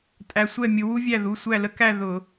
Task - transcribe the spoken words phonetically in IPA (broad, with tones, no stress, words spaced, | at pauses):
tʼæ˧sʷɛ˥˨mʲʊ˧ wu˥vʲæ˥˨ðu˩˧˩ sʷæ˥˨lə˥kæ˥˨ ðʊ˧˩˧